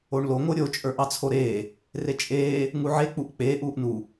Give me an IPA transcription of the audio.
o ɳ l o ŋ o ɾʲ o t͡ʃʼ ə˞ ʔ ɑ t͡sʰ o ɾ eː | r e t͡ʃʼ eː | ŋ u ʕ e k͡p u ʔ k͡p eː ʔ uː ʔ n u

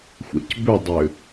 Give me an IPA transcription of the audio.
xʷ ɛ̰ c b ʏ dˤ ʏ

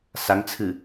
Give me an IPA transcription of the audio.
s a ŋ t͡sʰ ɨ

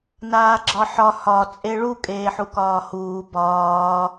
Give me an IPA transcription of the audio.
n aː ɡ͡ǁ ɒ ħ ɒ h ɒ t͡sʼ e ɭ u kʼ eː ħ u k ɒː h uː b ɒː

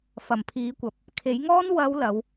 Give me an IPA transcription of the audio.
f ɐ˨˩ m pʰ iː˨˥ kʷ ɐ˨ p̚ | kʰ e˨˥ j ŋ ɔː˥ n w ɐ˨˧ w l ɐ˨˥ w

